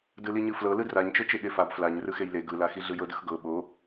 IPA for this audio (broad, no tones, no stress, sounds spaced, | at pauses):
d ɯ l i ɲ ɯ f l ɤ l ɯ d r a ɲ t͡ʃ ɤ t͡ʃ e ɠ e f a b f l a ɲ r ɯ x e j l e ɡ ɯ l a x i ɮ ɯ j ɤ d ɯ x ɡ ɤ ɓ o